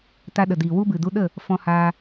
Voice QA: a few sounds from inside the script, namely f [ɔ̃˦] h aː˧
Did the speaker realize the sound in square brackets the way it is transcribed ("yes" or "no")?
no